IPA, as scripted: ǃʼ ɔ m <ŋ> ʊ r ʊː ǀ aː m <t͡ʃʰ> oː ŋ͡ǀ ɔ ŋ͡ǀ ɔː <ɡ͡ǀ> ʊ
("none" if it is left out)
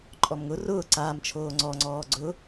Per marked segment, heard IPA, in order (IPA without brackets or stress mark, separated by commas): ŋ, t͡ʃʰ, ɡ͡ǀ